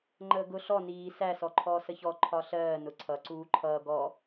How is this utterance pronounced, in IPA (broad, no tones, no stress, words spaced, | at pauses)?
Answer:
ŋ͡ǃəːɡʊ ɬɔ niː sæ sɔǃʰɔːsəçɔ ǃʰɒɬɜː nʊǀʰʌ ǀuːǃʰʌː ɡɔ